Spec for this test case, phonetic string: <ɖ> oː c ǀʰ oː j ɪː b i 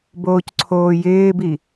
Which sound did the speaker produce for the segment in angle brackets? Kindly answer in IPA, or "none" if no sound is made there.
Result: b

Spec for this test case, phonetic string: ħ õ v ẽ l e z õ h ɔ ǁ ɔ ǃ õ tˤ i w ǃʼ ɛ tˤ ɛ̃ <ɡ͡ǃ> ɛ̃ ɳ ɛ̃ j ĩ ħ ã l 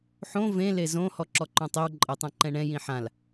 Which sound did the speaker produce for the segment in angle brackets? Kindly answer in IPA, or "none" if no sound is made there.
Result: ǃ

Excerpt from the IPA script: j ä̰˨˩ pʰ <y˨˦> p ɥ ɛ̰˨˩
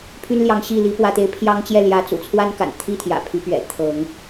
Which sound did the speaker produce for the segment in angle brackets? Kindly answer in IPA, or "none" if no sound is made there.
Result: y˨˦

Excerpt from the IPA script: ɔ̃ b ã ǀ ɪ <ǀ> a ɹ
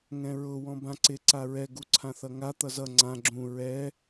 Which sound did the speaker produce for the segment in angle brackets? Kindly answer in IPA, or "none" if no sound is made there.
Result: ǀ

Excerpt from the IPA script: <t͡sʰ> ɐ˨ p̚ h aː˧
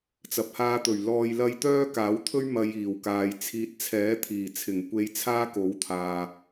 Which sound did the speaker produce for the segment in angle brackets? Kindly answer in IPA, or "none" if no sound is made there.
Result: t͡s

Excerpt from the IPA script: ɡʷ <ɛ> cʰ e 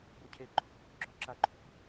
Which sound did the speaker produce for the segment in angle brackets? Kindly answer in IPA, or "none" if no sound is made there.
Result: ɨ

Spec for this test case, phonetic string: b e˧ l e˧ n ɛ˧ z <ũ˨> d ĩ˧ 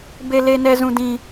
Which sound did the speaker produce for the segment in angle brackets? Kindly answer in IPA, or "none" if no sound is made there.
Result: ũ˧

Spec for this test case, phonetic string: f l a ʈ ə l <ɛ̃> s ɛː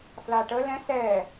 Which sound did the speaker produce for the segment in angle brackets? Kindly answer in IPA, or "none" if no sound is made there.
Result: ɛ̃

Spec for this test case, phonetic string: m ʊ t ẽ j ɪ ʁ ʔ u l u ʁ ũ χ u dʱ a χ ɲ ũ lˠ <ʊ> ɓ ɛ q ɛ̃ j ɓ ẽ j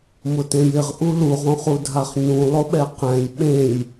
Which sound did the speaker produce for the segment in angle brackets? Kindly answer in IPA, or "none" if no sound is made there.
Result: ʊ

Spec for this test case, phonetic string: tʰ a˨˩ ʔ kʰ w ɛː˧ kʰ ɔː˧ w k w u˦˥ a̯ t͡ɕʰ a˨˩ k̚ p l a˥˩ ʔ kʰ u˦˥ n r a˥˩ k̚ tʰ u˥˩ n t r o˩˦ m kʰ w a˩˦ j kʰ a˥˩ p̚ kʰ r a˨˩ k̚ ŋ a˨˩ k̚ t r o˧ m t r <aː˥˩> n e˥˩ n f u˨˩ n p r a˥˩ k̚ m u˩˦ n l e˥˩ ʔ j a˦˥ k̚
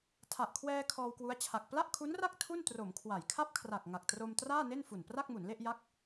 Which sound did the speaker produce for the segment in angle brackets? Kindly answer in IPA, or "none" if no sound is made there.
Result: aː˥˩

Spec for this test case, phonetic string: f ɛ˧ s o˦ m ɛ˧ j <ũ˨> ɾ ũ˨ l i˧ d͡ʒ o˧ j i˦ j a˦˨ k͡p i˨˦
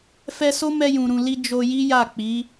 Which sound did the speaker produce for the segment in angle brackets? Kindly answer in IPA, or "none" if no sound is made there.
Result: ũ˨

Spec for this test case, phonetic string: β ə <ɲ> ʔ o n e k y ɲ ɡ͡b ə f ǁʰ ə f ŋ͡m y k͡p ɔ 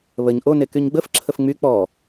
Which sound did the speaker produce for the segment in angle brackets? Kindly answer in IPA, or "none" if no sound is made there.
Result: ɲ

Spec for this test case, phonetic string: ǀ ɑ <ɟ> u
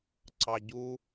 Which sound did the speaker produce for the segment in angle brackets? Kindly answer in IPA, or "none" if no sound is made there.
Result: ɟ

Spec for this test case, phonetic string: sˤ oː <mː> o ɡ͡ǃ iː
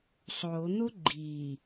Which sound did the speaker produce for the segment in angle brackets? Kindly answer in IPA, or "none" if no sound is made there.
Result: n̪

